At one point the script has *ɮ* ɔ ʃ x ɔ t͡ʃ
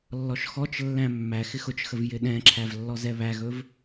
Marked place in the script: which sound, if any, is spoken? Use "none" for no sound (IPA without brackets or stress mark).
lː